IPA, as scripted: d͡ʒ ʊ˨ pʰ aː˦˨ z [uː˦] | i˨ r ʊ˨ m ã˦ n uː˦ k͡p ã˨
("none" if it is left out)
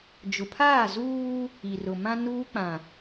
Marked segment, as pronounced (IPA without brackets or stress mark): uː˦